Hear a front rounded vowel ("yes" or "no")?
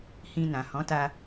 no